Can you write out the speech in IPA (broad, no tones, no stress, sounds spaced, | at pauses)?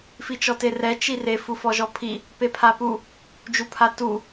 f i t͡ʃ ɔ t e r ɛ t͡ʃ i r e f u f ɔ ʒ ɔ pʰ i | p e pʰ a p u | d͡ʒ u pʰ a t u